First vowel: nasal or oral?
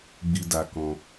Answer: oral